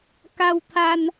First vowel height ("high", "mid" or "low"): low